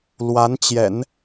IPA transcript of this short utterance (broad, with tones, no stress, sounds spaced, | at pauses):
l w a˧˥ n t͡ɕ j ɛ̰˨˩˦ n